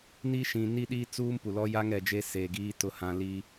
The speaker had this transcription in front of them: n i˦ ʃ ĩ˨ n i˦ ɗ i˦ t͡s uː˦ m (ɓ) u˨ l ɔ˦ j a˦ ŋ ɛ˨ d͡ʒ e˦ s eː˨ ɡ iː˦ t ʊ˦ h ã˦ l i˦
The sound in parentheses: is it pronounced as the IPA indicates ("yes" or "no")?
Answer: no